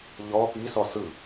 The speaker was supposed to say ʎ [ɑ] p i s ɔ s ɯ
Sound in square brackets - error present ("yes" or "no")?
yes